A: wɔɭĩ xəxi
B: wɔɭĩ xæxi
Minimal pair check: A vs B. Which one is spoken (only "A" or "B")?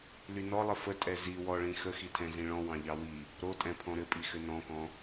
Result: A